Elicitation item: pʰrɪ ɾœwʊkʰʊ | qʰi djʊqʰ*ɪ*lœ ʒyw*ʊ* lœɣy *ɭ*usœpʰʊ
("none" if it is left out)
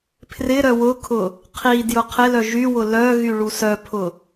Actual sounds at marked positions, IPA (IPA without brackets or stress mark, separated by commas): ɪ, ʊ, ɭ